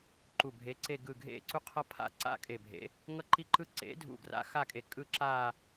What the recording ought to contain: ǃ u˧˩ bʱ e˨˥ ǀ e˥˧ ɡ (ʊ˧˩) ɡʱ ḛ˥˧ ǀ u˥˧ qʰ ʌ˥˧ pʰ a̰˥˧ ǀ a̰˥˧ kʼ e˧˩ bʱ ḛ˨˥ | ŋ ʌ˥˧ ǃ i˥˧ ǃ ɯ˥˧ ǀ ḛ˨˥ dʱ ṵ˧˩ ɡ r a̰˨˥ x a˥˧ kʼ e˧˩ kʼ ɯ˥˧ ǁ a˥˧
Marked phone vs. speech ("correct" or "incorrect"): incorrect